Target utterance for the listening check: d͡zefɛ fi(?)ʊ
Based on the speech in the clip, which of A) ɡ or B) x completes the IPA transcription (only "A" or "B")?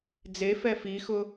B